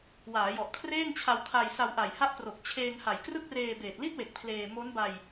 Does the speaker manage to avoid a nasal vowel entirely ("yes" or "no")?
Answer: yes